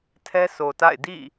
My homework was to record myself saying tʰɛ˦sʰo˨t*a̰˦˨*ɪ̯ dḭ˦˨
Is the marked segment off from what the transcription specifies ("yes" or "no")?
no